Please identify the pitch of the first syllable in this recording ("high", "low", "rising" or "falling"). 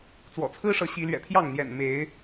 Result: low